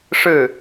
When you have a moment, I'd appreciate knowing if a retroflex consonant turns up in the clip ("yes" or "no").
yes